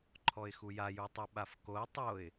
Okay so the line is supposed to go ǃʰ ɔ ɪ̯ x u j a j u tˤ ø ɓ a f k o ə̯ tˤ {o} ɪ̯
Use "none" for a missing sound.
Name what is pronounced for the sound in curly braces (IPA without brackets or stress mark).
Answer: o